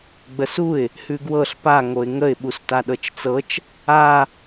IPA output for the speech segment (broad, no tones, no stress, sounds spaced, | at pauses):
ɡ͡b ə s u ɪ̯ | h ʉ ɡ w ɤ ɬ p a ŋ o ɪ̯ ŋ ə ɪ̯ ɓ u s t a ɗ ɤ t͡ʃ t͡s ɤ t͡ʃ | a